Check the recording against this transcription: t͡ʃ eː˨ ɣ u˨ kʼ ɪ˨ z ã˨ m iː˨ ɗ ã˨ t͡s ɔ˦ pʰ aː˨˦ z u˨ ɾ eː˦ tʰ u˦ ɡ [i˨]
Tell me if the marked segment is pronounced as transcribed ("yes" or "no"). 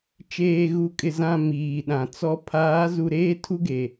no